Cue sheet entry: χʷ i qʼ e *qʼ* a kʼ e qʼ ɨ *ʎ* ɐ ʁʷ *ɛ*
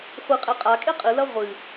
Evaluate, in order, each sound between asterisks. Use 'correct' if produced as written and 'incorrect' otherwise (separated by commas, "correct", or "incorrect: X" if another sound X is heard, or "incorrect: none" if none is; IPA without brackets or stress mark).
correct, incorrect: l, incorrect: ɨ